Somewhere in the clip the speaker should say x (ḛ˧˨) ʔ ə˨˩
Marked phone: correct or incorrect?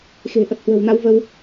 incorrect